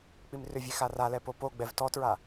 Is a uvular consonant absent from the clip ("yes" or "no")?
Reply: yes